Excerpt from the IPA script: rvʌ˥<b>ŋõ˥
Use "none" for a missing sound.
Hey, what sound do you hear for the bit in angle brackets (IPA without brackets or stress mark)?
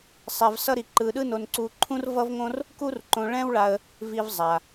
v